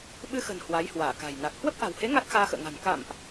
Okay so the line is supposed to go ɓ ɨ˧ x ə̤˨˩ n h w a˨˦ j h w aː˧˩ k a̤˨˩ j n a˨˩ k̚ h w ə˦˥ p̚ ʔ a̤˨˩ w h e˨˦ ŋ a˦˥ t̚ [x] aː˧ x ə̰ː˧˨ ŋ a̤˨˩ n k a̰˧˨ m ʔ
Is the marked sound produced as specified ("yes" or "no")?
yes